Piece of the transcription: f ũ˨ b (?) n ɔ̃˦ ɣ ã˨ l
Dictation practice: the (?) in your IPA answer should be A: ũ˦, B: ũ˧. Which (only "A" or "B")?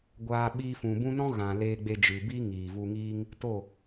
A